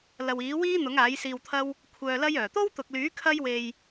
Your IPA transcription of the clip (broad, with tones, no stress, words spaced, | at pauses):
lɐ˨wiː˨˥wiː˥ n̪ʊ˨˥ŋaː˨˥jsiː˧wt̪ʰɐ˥w | kʷʰœː˧lɐ˥jœː˨˩ t̪o˥wt̪ʊ˨k̚lyː˨˥ kʰɐ˥jwe˧j